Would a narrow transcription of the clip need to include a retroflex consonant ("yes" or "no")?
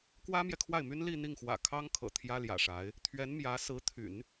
yes